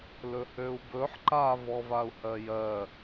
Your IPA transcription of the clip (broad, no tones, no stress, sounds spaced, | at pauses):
l ɵ h ø u̯ b ɵ ħ ǃ a v ɔ v a u̯ h ɜ j ɜ